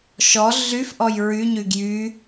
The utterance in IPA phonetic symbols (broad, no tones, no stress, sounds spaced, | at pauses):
ʃ ɔ ɮ y f ʔ ɔ j ɹ y ɲ y ɡ j y